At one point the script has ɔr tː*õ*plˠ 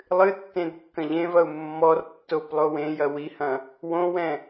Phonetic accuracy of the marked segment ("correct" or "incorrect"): incorrect